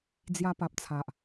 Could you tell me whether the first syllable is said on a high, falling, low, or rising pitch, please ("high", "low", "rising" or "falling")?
high